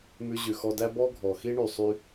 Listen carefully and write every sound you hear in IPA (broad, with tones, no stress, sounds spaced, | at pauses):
m ʉ˧ ʑ ʉ˩ x ɔ˧ d æ˥ b ɔ˥ ɡʱ ɔ˩ x i˥ ɳ y˩ sˤ y˧